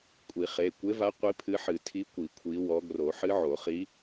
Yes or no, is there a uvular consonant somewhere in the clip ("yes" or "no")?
yes